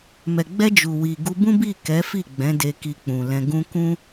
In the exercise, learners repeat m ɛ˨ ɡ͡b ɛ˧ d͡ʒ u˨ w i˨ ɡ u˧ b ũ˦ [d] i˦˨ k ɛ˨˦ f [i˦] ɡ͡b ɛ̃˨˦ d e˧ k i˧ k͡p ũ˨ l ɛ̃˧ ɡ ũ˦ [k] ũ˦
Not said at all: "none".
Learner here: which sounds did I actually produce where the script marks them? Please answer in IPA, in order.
b, i˦˨, k

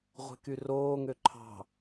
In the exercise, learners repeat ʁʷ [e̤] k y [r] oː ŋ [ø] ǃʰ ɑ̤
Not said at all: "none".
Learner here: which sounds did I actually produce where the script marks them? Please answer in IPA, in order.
e̤, r, ø

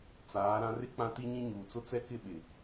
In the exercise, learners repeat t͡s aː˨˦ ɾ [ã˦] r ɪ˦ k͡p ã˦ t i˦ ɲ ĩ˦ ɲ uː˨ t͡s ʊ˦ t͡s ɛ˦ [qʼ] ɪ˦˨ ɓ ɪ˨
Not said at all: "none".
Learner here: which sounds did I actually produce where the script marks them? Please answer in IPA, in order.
ã˦, k

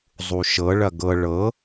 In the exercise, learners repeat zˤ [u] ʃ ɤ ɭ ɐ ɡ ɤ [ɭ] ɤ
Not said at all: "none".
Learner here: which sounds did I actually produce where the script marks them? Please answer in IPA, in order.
u, ɭ

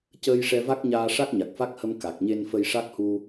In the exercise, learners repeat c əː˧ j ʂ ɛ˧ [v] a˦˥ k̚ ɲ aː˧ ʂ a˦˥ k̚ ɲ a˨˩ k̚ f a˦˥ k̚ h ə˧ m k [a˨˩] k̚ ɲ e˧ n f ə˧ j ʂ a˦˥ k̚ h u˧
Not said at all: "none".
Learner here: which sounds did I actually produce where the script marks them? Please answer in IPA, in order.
v, a˨˩

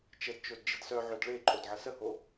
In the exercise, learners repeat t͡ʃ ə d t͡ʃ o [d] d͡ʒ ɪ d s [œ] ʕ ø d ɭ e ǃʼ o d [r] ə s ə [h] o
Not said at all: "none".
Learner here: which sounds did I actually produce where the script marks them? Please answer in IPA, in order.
d, œ, ʕ, h

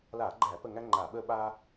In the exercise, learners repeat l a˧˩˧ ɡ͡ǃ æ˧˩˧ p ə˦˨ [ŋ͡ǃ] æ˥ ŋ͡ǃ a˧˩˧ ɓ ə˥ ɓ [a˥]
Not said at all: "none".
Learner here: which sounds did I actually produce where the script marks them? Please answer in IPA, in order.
ŋ, a˥

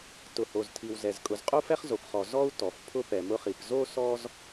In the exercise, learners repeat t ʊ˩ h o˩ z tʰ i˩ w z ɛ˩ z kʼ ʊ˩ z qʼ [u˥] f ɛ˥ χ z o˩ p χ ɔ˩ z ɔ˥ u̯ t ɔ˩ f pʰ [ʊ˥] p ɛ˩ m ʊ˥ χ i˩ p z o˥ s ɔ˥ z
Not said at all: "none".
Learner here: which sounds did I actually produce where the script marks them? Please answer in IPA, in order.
u˥, ʊ˥

